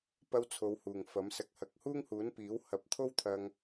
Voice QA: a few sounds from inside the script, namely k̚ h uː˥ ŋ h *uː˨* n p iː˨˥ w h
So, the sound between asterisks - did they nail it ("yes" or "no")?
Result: no